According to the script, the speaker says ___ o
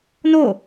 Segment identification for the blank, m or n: n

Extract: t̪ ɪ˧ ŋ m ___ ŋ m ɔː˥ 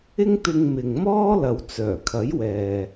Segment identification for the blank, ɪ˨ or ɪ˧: ɪ˨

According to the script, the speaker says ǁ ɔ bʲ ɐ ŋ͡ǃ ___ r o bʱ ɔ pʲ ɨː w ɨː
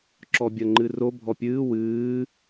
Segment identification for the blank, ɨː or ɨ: ɨ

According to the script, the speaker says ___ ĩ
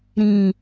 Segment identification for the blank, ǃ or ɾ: ɾ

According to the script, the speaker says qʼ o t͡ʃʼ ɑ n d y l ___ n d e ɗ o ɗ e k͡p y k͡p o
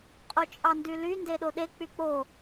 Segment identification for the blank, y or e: y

